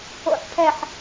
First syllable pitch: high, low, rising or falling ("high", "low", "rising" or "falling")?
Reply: low